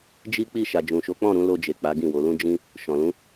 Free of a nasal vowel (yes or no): no